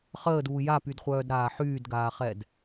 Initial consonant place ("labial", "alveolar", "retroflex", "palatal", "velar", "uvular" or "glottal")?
uvular